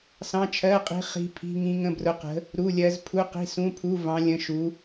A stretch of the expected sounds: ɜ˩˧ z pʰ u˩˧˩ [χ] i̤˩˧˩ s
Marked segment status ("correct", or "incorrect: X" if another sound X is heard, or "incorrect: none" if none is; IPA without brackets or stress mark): incorrect: q